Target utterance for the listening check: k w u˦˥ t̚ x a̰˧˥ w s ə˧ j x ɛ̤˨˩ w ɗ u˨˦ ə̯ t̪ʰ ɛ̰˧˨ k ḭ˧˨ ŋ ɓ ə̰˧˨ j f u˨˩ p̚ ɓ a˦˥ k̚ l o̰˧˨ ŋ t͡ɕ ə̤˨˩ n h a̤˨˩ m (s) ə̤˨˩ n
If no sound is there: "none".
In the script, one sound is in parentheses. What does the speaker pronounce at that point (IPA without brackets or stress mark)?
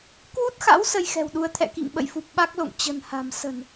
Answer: s